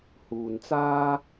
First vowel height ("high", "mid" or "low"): high